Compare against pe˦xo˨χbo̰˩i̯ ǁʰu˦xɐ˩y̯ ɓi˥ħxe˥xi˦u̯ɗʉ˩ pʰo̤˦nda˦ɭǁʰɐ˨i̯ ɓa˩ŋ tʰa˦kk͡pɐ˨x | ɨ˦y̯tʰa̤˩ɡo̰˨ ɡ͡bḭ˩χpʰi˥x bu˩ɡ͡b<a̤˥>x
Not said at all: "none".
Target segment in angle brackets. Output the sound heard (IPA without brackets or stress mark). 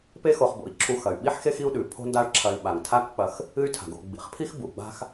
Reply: a̤˥